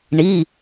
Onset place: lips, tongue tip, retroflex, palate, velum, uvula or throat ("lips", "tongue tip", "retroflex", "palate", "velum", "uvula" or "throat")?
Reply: retroflex